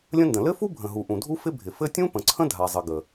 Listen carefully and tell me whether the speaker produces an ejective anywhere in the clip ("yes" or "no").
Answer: no